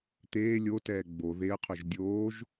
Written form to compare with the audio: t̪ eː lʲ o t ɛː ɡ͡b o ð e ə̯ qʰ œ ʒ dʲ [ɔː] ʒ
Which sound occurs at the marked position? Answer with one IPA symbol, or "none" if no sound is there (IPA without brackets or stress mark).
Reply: oː